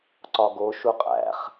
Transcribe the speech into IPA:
ǀɒɡo ʃuqʼæ̰χ

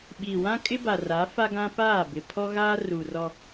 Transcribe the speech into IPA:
ɓiː˨wã˦kʼɪ˦ ba˨ ra˨˦fa˦ɡã˦ paː˦˨bɪ˨ pʰɔ˦ɣaː˦ ru˨rɔ˦

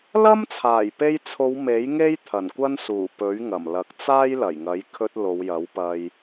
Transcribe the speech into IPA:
lɐ˥mt͡sʰaː˨˩jpe˧jt͡sʰo˨˧w me˨˥jŋe˥j t̪ʰɐ˨˩nkʷɐ˥nsuː˨˩ pɵ˨˥ɥŋɐ˨˩mlɐ˨˥k̚ t͡saː˥jlɐ˨˩jŋɐ˨˥j kʰɵ˧t̚ lo˨˧wjɐ˨˥wpɐ˧j

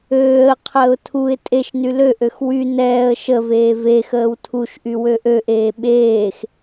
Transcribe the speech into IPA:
øːə̯qʰəːʊ̯ tʰuɪ̯ tʼeʃny løʔøx wy nɛːə̯ ʃəveː vexəːw tʰuʃʔy wøʔøʔeː ɓeːx

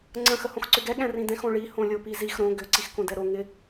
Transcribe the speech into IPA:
ŋ͡ǀə̃ xəhõxǀʏɡɛ ɠɛ̃rĩdɛ̃x õɭi hõlʲopizix ɾõ ɡʏ ǀixkõdɛɾo ŋɪ

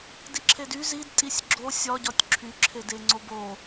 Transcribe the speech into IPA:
diǁʰedy zidtʼisʲ ɡ͡ǁo sʲɒɟɒtʲ ǁʰyǁʰede ŋ͡ǀobo

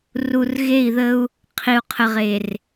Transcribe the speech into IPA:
ru˨rɣe˦˨i̯ðə˦u̯ | qʰi˨u̯qʰə˨ʁe˨r

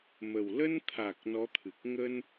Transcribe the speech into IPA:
mə˨˩wlə˧nt̪ʰa˨˩k̚ nɔ˨˦t̪ʰɨ˨˩k̚ ŋə˧n

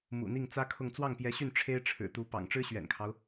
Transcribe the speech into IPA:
mṵ˨˩n̪i˥˩ŋt͡sä˥kʰʊ˥˧ŋ t͡swɑ˥˩ŋpjɛ˧˥ɕy˥˩n ʈ͡ʂʰe˥ɪ̯ ʈ͡ʂʰɻ̩˨˩t̪u˧˥pɑ̰˨˩ŋ ʈ͡ʂɻ̩˥ɕɥɛ̰˨˩nkʰɑ˦ʊ̯

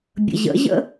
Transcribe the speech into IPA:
bʲə̰ʑə̰ʑə̰

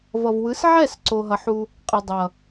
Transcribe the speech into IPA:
vʌ˨vwɯ˨˦sʕɛ˦˨s ǀo˨ɦʌ˨ħu˦ | qʼɯ˨dˤʌ˨

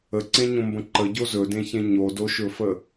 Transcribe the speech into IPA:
əǀẽɲõmbə̃ ǃəɟo zɵdẽçẽ ɲodoʃɵfə

